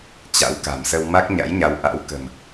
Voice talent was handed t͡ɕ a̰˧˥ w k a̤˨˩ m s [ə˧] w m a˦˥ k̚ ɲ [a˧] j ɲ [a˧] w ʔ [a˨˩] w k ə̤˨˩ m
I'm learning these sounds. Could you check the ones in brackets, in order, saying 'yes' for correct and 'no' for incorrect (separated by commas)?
yes, no, no, no